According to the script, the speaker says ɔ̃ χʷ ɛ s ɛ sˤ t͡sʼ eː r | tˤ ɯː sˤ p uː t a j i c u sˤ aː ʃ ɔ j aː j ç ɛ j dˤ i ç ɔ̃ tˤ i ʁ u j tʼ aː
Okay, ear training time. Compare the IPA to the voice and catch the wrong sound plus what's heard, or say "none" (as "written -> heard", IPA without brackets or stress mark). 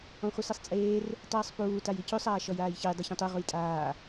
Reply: none